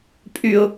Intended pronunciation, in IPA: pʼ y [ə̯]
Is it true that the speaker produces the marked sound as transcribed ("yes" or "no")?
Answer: no